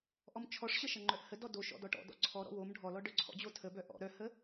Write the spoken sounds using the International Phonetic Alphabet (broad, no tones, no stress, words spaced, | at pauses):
ʔɔmt͡ʃʰɔʂɕəʃʌ ŋ͡ǃœʔhə dɔdo ʃɔ̰dɔʈɔ̰dɔ̰ ǀʰɔ ɾɔ̰wom ɖʱɔlɔ ɖœǀʰɔ̰d͡ʑo tʰəbœ ʔɔ̰ ɾœhə